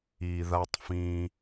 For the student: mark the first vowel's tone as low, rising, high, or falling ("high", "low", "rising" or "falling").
low